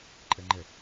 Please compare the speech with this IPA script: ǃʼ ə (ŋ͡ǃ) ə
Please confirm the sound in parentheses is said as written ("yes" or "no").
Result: yes